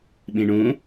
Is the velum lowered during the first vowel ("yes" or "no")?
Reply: yes